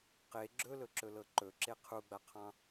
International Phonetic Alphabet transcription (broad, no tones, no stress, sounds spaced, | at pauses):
q e ɡ͡ǁ ɵ l ɵ ǁ ɵ l ɤ ǃ ɵ ǁ e qʰ u ɡ͡b a qʰ ɑ̃